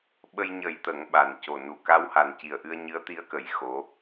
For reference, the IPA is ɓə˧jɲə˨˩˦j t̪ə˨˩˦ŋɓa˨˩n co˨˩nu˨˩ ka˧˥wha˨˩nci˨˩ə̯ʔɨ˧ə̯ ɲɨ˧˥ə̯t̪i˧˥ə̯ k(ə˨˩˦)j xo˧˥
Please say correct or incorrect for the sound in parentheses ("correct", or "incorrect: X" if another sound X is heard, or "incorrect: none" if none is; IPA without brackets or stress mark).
correct